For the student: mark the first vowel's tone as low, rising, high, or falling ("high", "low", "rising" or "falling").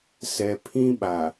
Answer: low